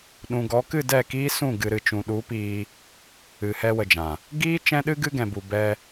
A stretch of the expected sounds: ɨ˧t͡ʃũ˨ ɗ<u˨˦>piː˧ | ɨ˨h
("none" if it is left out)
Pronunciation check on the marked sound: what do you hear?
u˨˦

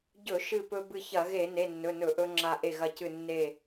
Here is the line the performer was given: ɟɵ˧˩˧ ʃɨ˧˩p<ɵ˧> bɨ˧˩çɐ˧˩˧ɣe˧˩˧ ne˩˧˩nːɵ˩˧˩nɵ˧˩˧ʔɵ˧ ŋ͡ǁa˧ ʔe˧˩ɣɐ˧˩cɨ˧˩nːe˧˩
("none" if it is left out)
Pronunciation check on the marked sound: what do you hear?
ɵ˧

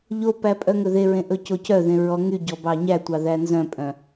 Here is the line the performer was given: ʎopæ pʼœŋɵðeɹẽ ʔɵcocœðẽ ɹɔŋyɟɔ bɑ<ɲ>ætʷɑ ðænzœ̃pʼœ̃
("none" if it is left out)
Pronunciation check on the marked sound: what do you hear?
ɲ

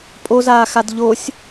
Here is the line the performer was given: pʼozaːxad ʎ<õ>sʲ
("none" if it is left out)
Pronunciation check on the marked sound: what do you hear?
o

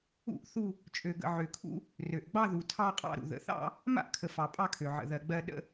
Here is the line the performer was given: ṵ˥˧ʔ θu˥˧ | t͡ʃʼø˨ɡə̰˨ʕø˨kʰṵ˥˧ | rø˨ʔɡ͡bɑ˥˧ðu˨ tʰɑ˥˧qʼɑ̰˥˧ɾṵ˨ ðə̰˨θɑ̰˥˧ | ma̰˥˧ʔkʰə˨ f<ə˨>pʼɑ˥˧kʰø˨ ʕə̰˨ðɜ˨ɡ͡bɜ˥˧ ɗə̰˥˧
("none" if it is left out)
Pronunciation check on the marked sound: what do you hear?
ɑ˨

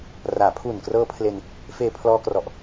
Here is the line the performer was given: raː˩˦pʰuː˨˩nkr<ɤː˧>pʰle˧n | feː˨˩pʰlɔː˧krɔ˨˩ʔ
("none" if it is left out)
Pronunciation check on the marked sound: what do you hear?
ɤː˦˥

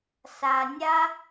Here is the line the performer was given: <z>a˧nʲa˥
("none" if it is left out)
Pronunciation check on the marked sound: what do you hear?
s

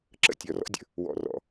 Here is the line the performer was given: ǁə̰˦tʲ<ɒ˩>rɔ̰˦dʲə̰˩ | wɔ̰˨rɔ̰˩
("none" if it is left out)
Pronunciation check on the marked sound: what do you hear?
ɒ˩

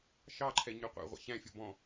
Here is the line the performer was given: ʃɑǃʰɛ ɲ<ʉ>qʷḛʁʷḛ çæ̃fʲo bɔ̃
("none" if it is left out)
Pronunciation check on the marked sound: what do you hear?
ʉ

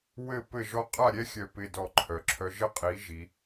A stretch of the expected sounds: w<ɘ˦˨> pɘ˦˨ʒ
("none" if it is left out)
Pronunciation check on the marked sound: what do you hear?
ɘ˦˨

